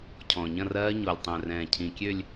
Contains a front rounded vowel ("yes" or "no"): yes